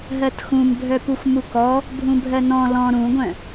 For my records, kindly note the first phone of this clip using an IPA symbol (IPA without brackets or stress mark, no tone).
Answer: ɦ